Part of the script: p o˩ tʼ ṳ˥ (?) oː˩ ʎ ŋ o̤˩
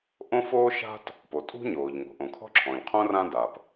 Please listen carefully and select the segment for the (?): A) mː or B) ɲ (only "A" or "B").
B